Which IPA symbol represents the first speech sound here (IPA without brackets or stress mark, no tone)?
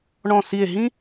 ɳ